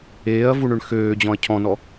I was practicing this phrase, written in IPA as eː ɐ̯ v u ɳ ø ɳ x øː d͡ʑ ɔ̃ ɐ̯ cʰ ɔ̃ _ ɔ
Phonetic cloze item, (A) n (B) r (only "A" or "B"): A